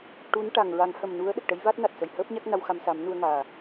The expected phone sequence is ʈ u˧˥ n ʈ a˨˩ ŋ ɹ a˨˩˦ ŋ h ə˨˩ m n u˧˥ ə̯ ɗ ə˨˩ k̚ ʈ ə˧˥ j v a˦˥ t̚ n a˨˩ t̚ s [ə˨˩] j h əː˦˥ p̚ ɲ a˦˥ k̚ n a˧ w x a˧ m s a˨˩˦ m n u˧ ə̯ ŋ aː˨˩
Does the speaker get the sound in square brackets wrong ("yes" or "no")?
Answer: no